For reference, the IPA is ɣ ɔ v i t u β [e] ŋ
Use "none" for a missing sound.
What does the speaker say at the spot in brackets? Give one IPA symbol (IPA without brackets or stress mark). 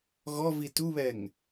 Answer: ɛ